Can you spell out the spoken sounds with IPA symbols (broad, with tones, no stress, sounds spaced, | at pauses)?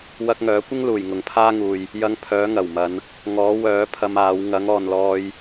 w ɐ˧ k̚ ŋ œː˨˥ kʷ ɪ˥ ŋ l uː˨˩ j ŋ ʊ˨˩ ŋ pʰ aː˥ ŋ uː˨ j | j ɐ˧ ŋ pʰ œː˨˥ ŋ ɐ˨˩ w m ɐ˨˧ n | ŋ ɔː˨˥ w œː˨˥ pʰ ɐ˧ m aː˨˥ w ŋ ɐ˨˥ ŋ ɔː˨ n l ɔː˧ j